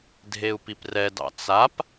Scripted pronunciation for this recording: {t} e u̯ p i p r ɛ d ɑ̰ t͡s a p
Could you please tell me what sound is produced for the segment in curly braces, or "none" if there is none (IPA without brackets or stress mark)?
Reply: dʱ